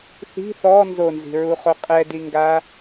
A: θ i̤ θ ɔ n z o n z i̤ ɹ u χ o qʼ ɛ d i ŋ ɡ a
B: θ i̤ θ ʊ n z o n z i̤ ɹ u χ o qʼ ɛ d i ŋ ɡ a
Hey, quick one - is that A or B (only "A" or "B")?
A